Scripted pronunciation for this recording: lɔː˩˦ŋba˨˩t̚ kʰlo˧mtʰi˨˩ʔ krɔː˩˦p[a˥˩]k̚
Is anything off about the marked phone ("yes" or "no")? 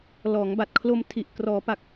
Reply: yes